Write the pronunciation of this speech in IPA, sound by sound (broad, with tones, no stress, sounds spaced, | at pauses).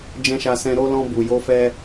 d͡ʒ ɛ̃˧ ʃ a˧ s ɛ̃˧ ɾ o˧ l ɔ̃˧ b u˨ j o˧ f ɛ˧